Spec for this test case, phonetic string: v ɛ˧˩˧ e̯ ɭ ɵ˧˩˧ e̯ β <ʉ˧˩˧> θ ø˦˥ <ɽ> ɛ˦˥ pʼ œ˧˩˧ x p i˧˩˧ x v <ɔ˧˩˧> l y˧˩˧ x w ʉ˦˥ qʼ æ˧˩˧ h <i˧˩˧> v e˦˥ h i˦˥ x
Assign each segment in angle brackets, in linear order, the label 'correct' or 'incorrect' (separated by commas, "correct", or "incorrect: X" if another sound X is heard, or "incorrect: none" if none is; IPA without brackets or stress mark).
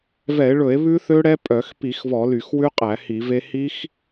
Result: incorrect: ʉ˦˥, correct, correct, correct